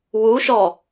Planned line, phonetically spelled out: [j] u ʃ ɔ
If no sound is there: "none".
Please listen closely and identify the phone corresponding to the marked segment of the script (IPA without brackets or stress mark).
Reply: w